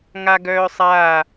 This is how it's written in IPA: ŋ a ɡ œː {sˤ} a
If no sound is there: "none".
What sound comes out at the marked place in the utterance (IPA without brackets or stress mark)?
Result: sˤ